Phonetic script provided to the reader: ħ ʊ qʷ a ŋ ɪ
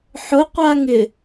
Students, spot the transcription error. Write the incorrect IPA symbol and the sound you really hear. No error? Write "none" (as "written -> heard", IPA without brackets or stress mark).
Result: none